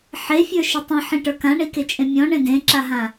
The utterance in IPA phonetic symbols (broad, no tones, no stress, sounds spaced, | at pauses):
ħ e fʲ ə˞ ʃ ɘ tˤ ĩ ħ ĩ ʈ ə˞ k ã ɳ i k e t͡ʃʼ ẽ mʲ ɔ̃ ɳ ẽ d ẽ ǁ a ɦ ã